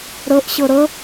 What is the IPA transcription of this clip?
ɾ ɤ ʔ ɕ ɤ ɾ ɤ

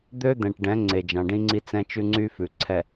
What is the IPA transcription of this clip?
d̪ ø˦ d̪ ɛ̃˨ ʈ ɖ ɛ̃˨˦ ŋ͡ǀ e˨ d͡ʒ ɑ̃˨ ɖ ĩ˦ ŋ͡ǀ i˦ t͡s ɛ̃˦ t͡ʃ ʉ˦ ŋ͡ǀ y˦ f ʉ˨ ǀʰ ɛ˨

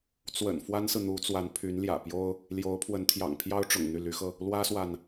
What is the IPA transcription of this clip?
t͡s w ə̰˨˩ n f w a˥ n s ɹ̩˨ n̪ u˧˥ t͡s w a˧˥ n pʰ y˧˥ n l j ä̰˨˩ p j o˥ ʊ̯ | l j o˧˥ ʊ̯ pʰ w ə˧˥ n t̪ʰ j ɑ̰˨˩ ŋ pʰ j ɑ˥ ʊ̯ ʈ͡ʂ ʊ̰˨˩ ŋ n̪ y˥˩ l y˧˥ x ɤ˧ | l w ä˥ s w a˨ n

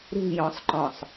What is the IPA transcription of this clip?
ɾ ṳ j ɔ̃ sˤ ǃ ɔ̃ sˤ

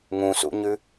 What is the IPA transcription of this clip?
ŋ ũ s ṵ ɲ ʉ

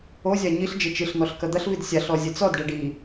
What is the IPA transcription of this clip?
o zʲ a ɲ i ɬ d͡ʒ ɘ t͡ʃ ɨ ɬ n̪ ɔ ɬ k ɐ d̪ ɐ ɬ v i d sʲ a ɬ ɔ zʲ ɘ t͡s ɔ d ɖ ɛ ɖ i

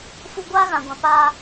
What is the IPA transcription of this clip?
f u˦ ɡʷ aː˦ ɣ ã˨ ɡʷ ã˨ p aː˦

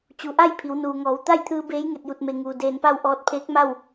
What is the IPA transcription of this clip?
t͡ɕ u˩ ʔ a˥˨ j pʰ i˩˧ w n uː˩ ŋ ɔː˩˧ w t̪ a˥˨ j t̪ʰ ɯː˧ b eː˧˥ j ŋ e˧˩ t̚ j u˧˩ t̚ m e˩ ŋ uː˩ d eː˧˩ n p a˥˨ w ʔ ɔː˧ t̚ pʰ eː˧˥ k̚ m a˥˨ w

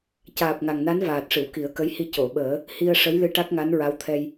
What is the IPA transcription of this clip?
c aː˨˩ p̚ ŋ a˨˩ ŋ n a˧˥ n v aː˨˩ t̚ ʂ ɨ˨˩˨ w k i˨˩˦ ə̯ k ə˧˥ j h i˧ c o˨˩˨ ɓ əː˨˩˦ | h i˧ ə̯ ʂ ə˧˥ j l ɨ˧ ʈ a˦˥ k̚ ŋ a˧˥ n ɹ a˧˥ w t̪ʰ ɛ˧ j

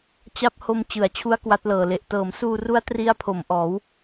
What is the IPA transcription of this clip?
t͡ɕ a˦˥ p̚ h o˧ m t͡ɕ ɯ˩˦ a̯ t͡ɕʰ u˦˥ a̯ k w a˦˥ t̚ l ɤː˨˩ l e˨˩ ʔ t ɤː˩˦ m s uː˧ r u˦˥ a̯ t r i˦˥ a̯ pʰ o˩˦ m ʔ ɔː˩˦ w

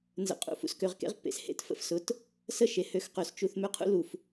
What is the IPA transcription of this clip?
n z ə̰˨ qʼ ṵ˨ f ṵ˨ s k ø˨ ʁ k ḛ˦ ʁ pː ḛ˨ s h ḛ˦ t f ə̰˨ f s ʊ˨ t | s ə˦˨ ʃ e˨ h ø˨ x q ø˨ s t͡ʃ u˨ θ m ø˦ qʰ ṵ˦ l u˨ f

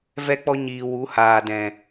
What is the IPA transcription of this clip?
v ɛ˦ k͡p ɔ˦ ɲ iː˨ w u˨˦ h aː˨ d ɛ̃˨

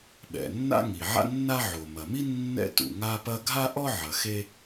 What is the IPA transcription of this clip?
ɓ ɛ̰˩ nː a̰˥ ŋ i˩ ʕ a̰˥ nː a˥ ʕ o˩ m ɐ˩ m i˥ nː ɛ̰˥ t ṵ˩ ŋ a˥ p ɐ˥ ɡʱ a˥ ʔ ɔ˥ ʕ ɐ˩ x e˥

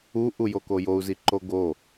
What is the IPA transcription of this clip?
u ʔ u j o k o j o u̯ z i ǃ o ɡ o

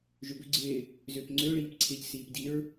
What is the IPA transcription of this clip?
ʒ ʏ b ʏ ɡ͡ǀ ɪː | z ʏː p ŋ͡ǀ ø ɭ iː p ǀʰ ɪ ʎ s iː p d i ɹ

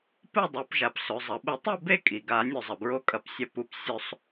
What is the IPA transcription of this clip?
p ɨ˥˨ dˤ ʉ˩˧ p ʒ a˩ p s ɵ˩˧ zˤ ɐ˩˧ ɓ ɨ˧˩˧ tˤ e˥˨ b e˥˨ kʼ i˩ ɡ a˧˩˧ nʲ ɵ˧˩ zˤ ɐ˩ b ɹ o˥˨ kʼ ɐ˧˩˧ p sʲ ɐ˧˩ p u˩ p sʲ ɵ˧˩˧ sˤ

